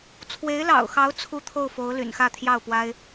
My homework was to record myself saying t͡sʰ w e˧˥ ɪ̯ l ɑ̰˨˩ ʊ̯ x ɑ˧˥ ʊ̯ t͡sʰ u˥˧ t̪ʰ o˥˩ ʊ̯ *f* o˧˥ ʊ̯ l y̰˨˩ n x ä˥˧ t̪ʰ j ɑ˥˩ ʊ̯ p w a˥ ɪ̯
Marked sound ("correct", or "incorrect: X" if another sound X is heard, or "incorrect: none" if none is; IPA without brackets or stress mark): correct